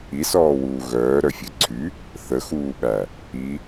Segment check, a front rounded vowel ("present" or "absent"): present